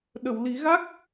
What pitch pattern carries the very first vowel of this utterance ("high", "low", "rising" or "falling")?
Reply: low